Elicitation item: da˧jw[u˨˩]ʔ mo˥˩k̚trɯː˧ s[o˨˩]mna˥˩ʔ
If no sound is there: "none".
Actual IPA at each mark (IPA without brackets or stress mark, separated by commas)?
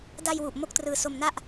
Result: u˨˩, o˧